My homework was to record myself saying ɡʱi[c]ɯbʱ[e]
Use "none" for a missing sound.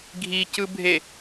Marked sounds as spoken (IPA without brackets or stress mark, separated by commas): c, e